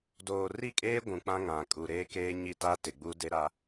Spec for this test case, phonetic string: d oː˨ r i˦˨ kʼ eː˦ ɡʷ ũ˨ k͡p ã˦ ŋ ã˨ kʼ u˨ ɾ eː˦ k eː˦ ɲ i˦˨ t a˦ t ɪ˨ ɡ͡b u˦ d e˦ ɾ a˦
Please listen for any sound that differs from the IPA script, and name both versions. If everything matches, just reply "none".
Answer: none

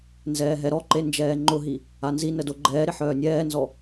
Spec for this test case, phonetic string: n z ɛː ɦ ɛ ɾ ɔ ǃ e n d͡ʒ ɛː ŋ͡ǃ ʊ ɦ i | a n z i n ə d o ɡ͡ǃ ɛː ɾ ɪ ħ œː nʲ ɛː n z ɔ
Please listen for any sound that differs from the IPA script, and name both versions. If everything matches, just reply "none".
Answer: none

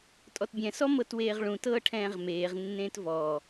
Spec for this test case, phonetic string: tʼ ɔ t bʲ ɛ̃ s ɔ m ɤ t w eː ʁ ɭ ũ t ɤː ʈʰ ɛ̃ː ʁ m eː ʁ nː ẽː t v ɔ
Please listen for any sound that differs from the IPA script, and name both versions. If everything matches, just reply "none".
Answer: none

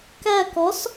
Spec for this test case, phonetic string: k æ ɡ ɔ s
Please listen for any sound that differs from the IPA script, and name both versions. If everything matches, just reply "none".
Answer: ɡ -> k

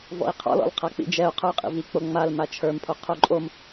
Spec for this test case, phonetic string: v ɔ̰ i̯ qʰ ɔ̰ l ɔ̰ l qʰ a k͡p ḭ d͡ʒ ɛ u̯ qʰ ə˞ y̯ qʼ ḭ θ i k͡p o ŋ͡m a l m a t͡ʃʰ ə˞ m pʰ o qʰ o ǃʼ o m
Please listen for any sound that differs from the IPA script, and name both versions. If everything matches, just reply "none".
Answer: θ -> v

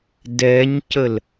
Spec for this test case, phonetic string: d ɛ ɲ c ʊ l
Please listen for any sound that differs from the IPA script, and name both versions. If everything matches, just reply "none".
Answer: ʊ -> ə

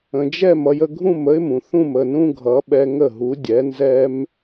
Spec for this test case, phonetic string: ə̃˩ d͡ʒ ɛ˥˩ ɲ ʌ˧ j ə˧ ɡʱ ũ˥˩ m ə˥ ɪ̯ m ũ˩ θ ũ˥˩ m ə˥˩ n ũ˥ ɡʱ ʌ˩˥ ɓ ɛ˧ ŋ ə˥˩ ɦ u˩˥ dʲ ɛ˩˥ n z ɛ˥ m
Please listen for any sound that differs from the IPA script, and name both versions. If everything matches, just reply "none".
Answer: ɲ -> m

